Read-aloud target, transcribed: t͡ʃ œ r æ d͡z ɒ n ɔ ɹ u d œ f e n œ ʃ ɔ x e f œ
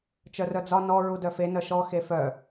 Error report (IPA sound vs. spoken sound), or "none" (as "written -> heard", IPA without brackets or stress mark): æ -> œ